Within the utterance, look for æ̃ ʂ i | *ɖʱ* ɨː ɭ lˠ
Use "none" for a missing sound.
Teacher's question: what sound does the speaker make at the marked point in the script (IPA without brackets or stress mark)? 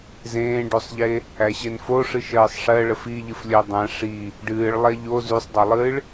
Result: ɖ